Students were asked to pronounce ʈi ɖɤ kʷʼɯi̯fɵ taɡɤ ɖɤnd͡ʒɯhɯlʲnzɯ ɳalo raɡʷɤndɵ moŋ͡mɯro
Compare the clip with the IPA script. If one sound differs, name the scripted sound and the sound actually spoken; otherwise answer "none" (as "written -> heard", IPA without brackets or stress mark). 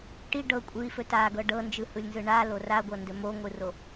ŋ͡m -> ŋʷ